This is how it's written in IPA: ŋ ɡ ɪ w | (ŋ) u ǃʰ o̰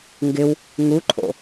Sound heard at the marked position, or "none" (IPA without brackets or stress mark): ŋ